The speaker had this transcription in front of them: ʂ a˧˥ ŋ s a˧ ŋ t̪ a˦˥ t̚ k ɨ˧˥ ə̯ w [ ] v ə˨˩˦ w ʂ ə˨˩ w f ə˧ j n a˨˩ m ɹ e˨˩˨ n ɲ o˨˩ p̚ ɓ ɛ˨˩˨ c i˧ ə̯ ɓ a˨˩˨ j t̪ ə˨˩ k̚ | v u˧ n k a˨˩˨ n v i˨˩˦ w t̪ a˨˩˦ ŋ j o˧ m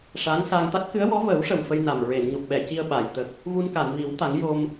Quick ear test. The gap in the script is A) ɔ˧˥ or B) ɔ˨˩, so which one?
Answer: A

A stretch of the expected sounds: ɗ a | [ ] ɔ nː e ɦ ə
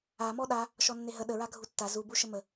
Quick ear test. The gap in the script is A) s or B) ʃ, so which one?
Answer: B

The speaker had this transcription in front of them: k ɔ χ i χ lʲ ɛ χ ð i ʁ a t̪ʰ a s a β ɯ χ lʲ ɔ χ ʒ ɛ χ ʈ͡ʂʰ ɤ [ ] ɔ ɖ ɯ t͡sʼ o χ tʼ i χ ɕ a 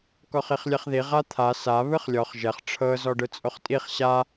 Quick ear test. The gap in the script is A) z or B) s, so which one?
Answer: A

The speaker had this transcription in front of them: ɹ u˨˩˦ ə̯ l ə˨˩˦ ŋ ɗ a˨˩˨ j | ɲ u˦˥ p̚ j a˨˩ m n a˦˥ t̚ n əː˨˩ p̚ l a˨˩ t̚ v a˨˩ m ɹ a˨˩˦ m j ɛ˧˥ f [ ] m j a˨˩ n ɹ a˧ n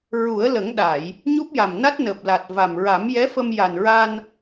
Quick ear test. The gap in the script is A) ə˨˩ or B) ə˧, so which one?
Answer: B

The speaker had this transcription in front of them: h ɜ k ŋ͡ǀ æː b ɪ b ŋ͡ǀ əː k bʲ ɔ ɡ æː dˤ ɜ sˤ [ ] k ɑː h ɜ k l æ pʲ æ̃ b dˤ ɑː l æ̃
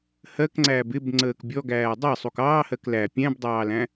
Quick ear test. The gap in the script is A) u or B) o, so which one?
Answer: A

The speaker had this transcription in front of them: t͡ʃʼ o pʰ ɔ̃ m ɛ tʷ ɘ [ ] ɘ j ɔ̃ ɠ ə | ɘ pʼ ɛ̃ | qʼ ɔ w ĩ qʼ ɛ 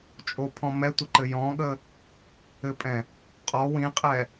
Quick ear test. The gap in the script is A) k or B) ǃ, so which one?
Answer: B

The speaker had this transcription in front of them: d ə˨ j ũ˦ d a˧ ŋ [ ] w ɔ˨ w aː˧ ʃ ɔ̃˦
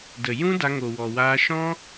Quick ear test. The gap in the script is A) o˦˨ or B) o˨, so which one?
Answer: B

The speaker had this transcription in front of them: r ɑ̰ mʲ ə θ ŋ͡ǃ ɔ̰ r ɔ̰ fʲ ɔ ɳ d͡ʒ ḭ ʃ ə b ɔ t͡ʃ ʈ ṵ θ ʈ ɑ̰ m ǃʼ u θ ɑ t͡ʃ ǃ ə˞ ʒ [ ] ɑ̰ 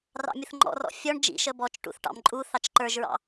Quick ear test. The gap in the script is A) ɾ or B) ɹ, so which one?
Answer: B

